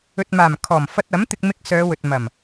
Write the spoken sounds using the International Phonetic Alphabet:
ɵ˨t̚maː˨˩m kʰɔː˨˩mfɐ˧t̚ɐ˨˥mt̪ɪ˧k̚ mɪ˧k̚ sœː˨˧wɵ˨t̚ mɐ˨˩m

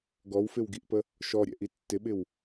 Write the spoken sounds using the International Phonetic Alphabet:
ɡɔwfɪwɡiʔpə | ʃɔɾʲɛ̰ʔi tːɪɓɪw

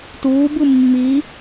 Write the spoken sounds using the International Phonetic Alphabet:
tuːbɯ mːi

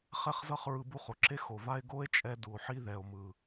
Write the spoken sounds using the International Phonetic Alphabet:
χɛ˦χzʌ˦χɹɯ˧ bu˦χo˨ǁe˦ xo˨va˦e̯ ɡo˦e̯t͡ʃʼɛ˧ du˨o̯ħi˦ðɛ˨o̯mɯ˨

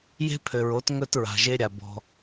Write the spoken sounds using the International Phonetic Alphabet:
je̤˦pʰø˨ɹo˨˦t ŋɵ˦tɹa̤˨ʒe˦ ɾʲa˨bɔ̤˧

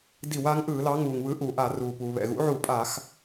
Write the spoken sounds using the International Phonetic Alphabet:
di˧˩˧wa˨˥ŋʔɯː˧˩˧ lɑ˨˥ŋuː˩ŋ βɯ˨˥ʔuː˩ʔa˧˩˧ ruː˩puː˩βɛ̰˩ ɣṵ˨˥ʕu˧˩˧pʼa˧˩˧x

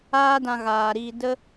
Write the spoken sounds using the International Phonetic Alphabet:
aː˦dã˧ ɣaː˨ɾiː˧ də˦

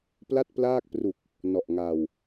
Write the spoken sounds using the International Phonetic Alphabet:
pla˥˩t̚plaː˥˩k̚pru˨˩k̚ | nɔ˨˩ʔŋa˨˩w

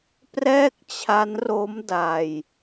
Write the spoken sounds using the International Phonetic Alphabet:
prɛː˥˩k̚t͡ɕʰa˦˥nro˦˥m da˧j

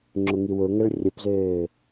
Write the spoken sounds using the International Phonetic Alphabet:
ŋ͡ǁʊŋiwʊŋɐɭ rʲʊpzøː

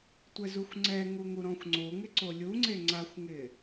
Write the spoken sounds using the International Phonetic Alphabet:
tʷɛzuxʷŋ͡ǀɛŋu ŋuɾɔ̃xʷŋ͡ǀoŋɪ ǀolʲuŋ͡ǀe ŋ͡ǀaxʷŋɪ

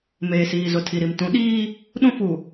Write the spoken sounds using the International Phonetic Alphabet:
meː˨siː˨zʊ˨ tʰi˨ɾi˨m tũ˨˦ɗiː˦ | ɗũ˦fu˨

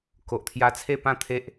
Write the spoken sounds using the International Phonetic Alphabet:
ko˨ʔt̪ʰja˧t͡sʰe˥˧ pã˥˧t̪ʰe˦ʔ

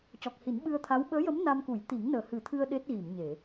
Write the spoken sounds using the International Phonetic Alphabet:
cɔ˨˩k̚hi˨˩˦nɓɨ˧ə̯t̪ʰa˧˥w ɓəː˧˥jə˧˥m na˧mku˨˩˦j t̪i˨˩˦ŋnəː˨˩hɨ˨˩˦t̪ʰɨ˧ə̯ ɗe˦˥t̚ɣi˨˩˨mɲe˨˩˨

